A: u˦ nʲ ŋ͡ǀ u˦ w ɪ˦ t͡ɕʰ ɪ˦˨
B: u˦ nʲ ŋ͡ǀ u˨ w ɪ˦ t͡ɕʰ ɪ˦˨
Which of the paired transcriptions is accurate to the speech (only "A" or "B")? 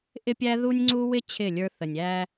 A